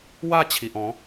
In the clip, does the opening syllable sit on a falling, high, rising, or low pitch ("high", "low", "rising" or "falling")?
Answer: falling